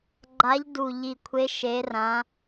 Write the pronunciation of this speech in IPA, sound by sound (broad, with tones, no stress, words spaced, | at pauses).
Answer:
ɡ͡ǃa˨˦ʎdu˨˩ʎi˨˩kʷʰe˨˦ ʃe˨˦rã˨˦